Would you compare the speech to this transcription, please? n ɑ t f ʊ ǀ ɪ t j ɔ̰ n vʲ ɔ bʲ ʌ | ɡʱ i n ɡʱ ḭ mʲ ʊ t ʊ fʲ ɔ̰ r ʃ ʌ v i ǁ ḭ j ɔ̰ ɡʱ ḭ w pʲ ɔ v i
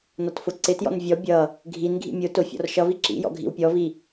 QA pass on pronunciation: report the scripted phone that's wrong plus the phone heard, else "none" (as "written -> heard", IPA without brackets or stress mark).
ɑ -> ɒ